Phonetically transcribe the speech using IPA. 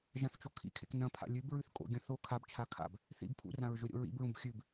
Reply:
ʒ ã θ t͡ʃ o kʰ ḭ kʰ ḛ k n ɐ̃ pʰ a̰ lʲ ʉ b ɹ ʉ θ kʼ o̰ ɡʲ ɐ̃ θ o kʰ a b t͡ʃʰ a kʰ a̰ b | θ ḭ b pʰ ṵ r ã ɹ ʒ ɵ ɾʲ o̰ ɹ ḭ b ɹ ũ b xʲ ʉ b

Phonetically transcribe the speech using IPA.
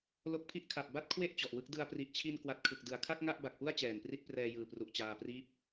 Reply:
l o˦˥ k̚ pʰ i˥˩ ʔ kʰ a˨˩ p̚ b a˥˩ t̚ kʰ w e˥˩ ʔ t͡ɕ ɔ˨˩ ʔ w ɯ˥˩ k̚ d ɯ˧ a̯ p r i˨˩ ʔ t͡ɕʰ i˧ n k w a˨˩ t̚ kʰ ɯ˨˩ k̚ d ɯ˨˩ a̯ kʰ a˥˩ k̚ ŋ a˥˩ ʔ b a˨˩ k̚ p u˥˩ a̯ t͡ɕ ɛː˨˩ n p r i˥˩ t̚ p r ɛː˧ j ɯː˨˩ p r u˨˩ ʔ t͡ɕ aː˧ p r iː˥˩ p̚

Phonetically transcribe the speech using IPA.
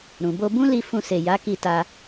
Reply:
ɾ ũ˨ b o˧ b ũ˦ l i˧ f ũ˧ s e˨ j a˨˦ k i˧ t a˧

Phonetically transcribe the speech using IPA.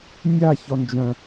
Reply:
nʲ a ç ɔ n d͡ʒ œ̃

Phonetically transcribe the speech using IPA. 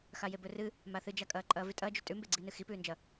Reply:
x a j e b ɵ r ɨ | m a θ ɨ d͡ʒ a kʼ ɐː ǃʼ ɐː v ʉ tʼ ɐː d͡ʒ ʉ tʼ ʉ m b e ɡ͡ǀ iː n ɨ x i p ʉː n d͡ʒ ɐ

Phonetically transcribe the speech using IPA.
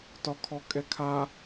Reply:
t ɒ kʰ ɔ kʼ ɛ kʰ a

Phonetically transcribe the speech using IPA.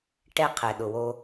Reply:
ʈ ɛ˧ qʰ ɛ˩ ɗ ʊ˩ w o˧

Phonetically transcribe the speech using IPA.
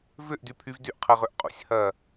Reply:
v ʏ ʔ d y pʰ y v d y ʔ qʰ ɐ ʁ ø ʔ qʼ ṵ sʲ h ɐ

